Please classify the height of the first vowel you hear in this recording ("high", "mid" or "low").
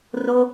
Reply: mid